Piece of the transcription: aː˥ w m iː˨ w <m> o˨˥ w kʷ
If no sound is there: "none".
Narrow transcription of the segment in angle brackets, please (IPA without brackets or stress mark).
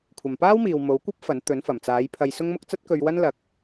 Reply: m